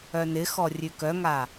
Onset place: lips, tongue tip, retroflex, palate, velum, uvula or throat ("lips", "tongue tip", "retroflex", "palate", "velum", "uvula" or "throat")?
tongue tip